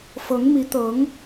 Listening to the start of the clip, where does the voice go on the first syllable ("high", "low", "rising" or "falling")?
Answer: rising